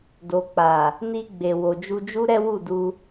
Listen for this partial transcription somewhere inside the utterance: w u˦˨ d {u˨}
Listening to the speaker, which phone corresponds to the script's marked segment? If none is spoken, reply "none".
u˧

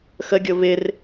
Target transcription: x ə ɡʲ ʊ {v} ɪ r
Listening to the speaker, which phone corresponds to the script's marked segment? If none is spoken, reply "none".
v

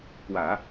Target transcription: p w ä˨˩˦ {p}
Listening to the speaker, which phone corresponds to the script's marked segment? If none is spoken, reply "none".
none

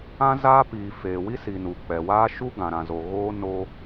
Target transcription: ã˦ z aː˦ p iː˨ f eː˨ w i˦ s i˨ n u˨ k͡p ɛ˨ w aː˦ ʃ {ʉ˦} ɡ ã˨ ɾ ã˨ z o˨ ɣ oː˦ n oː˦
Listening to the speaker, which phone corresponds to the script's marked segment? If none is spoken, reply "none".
u˦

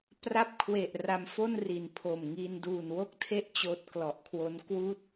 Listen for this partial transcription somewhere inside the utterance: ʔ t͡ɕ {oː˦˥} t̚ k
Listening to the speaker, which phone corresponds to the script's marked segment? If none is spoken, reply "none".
oː˦˥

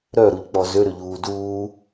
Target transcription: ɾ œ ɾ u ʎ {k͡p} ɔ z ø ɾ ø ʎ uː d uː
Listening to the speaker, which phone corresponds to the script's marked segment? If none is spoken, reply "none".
k͡p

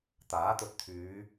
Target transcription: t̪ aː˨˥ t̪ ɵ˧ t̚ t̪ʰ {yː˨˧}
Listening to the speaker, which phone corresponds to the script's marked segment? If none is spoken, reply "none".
yː˨˧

